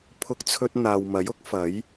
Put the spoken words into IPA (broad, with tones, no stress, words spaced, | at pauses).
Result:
pʰʊ˧k̚t͡sʰɵ˧t̚n̪aː˨w mɐ˨˥jʊ˥k̚fɐ˨˥j